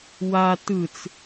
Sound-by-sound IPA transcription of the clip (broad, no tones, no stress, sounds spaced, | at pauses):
w a t ɯ t͡s